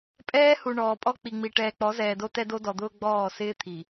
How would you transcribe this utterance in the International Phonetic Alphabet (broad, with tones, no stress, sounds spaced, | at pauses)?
pʼ ɛː˦ h u˨ ɳ ɔː˨ pʼ ɔ˦ k͡p i˨ ŋ͡m i˨ ʈ ɛː˨ k͡p ɔ˨˦ z ɛː˨ d o˦ t ɛ˦ d o˦ d ɔ˨ d̪ ʊː˦ ɡ͡b ɔː˦˨ s ɪː˦ t̪ʰ i˨